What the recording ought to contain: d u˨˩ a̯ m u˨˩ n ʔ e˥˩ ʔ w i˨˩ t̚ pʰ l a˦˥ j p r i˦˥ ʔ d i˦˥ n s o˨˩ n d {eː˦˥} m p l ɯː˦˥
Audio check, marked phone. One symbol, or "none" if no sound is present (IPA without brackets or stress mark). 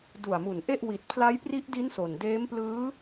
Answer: eː˦˥